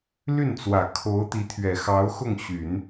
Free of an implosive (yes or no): yes